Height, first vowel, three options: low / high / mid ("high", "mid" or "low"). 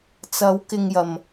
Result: low